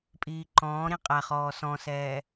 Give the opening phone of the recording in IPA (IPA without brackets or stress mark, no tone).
pʼ